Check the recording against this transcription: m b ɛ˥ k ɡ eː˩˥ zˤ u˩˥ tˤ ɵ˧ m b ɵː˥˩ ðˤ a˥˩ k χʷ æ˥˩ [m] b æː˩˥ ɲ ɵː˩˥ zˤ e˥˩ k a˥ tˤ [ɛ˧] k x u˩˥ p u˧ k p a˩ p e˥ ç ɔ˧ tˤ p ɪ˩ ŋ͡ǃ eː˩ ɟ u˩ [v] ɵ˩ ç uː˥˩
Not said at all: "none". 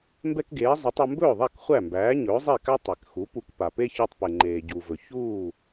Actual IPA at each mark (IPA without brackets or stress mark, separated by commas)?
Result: m, ɛ˩, v